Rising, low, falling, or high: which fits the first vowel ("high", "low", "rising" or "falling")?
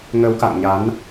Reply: rising